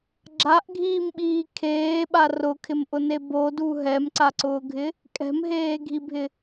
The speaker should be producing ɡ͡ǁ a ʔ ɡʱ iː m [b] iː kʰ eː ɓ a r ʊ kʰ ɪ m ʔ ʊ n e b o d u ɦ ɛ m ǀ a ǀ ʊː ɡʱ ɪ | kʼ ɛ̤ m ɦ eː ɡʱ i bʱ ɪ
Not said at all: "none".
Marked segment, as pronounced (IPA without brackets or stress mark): ɓ